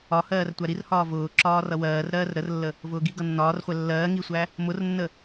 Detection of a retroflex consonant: absent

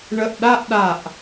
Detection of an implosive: present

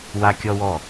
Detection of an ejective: absent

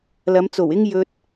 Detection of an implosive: absent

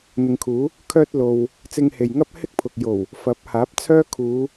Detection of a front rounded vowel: present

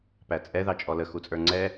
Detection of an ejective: present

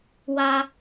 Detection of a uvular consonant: absent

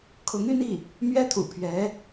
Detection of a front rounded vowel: present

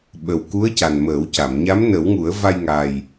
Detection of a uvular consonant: absent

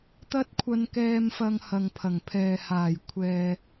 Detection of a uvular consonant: absent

